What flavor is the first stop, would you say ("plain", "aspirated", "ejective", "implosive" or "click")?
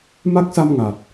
plain